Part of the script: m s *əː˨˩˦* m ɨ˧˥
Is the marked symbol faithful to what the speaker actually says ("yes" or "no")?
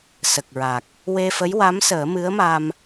yes